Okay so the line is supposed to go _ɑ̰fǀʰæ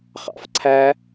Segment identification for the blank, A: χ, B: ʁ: A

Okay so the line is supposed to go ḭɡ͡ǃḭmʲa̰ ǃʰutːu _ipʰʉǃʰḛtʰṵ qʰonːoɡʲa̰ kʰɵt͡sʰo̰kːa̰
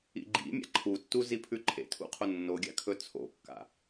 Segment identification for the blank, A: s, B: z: B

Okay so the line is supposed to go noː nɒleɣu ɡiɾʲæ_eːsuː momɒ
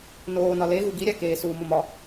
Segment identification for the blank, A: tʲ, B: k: B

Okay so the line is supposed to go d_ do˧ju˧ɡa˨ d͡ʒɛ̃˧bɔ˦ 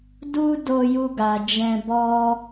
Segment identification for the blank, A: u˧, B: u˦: B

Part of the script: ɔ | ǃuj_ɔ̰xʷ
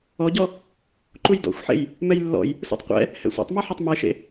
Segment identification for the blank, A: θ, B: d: B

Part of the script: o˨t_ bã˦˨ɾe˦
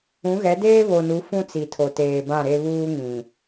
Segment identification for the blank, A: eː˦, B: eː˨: B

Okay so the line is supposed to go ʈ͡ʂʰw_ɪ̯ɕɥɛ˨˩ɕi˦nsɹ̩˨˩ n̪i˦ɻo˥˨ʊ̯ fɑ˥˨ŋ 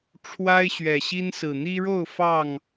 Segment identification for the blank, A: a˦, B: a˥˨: A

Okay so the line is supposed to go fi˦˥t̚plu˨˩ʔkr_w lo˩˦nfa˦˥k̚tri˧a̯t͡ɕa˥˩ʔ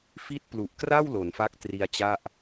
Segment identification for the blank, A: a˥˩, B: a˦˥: A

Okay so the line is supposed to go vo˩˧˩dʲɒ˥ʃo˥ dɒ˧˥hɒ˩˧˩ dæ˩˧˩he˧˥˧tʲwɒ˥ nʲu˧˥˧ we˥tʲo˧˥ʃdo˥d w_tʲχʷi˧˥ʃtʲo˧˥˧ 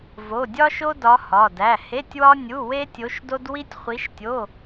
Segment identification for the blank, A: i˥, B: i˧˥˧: A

